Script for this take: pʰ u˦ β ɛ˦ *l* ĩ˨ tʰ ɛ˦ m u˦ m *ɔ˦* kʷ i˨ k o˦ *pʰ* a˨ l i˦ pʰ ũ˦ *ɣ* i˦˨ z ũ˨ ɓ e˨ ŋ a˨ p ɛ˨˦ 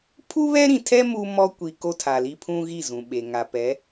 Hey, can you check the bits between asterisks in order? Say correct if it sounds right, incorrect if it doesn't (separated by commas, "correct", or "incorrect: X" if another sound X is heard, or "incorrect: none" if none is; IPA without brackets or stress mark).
incorrect: ɾ, correct, incorrect: tʰ, correct